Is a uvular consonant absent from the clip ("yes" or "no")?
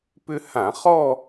no